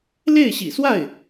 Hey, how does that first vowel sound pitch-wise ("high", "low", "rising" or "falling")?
falling